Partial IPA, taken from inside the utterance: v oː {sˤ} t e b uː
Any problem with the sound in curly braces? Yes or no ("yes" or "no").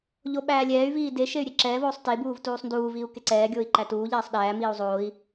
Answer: no